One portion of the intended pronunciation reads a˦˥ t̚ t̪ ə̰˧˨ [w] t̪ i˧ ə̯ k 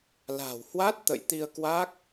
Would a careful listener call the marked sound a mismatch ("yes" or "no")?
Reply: yes